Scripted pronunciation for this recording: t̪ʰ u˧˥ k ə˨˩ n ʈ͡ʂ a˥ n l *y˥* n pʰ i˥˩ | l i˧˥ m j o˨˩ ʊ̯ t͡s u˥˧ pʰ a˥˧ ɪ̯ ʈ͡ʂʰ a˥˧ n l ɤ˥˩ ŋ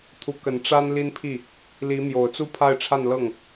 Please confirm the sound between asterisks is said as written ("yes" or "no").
no